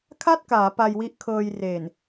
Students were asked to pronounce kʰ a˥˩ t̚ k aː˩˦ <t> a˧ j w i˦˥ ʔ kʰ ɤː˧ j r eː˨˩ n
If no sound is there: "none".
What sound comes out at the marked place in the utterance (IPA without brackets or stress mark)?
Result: p